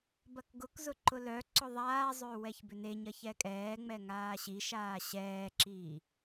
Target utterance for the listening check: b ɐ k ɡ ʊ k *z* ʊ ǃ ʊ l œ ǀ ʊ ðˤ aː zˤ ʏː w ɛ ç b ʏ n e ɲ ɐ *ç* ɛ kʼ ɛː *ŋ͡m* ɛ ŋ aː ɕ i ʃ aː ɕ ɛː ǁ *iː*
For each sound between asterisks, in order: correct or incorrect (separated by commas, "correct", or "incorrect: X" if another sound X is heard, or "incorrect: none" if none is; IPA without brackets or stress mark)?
correct, correct, correct, correct